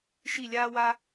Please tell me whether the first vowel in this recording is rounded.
no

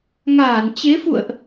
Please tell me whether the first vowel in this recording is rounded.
no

